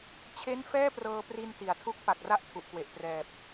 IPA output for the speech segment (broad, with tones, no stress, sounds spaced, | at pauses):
t͡ɕʰ e˥˩ n f ɛː˥˩ p r ɤː˧ p r i˧ n t i˩˦ a̯ tʰ u˥˩ k̚ p a˨˩ k̚ r a˥˩ ʔ tʰ u˨˩ ʔ k w e˨˩ ʔ p r ɛː˨˩ p̚